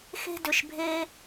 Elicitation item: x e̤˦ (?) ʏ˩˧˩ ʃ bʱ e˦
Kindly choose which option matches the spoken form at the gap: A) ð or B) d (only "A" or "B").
B